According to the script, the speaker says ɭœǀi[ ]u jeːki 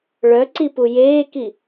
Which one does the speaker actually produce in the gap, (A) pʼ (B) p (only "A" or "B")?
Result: B